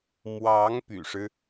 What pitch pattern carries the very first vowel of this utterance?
rising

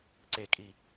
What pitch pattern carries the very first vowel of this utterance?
falling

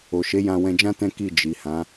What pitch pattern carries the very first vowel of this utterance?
low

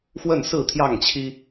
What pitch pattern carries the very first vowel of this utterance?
falling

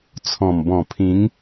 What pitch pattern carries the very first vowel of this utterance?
low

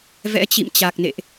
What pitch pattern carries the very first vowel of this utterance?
rising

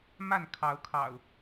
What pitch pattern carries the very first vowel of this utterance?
falling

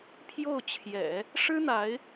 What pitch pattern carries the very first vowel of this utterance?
falling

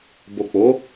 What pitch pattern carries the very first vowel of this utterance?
low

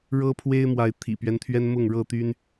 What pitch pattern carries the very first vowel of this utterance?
high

